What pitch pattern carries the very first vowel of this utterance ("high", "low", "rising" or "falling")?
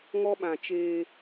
high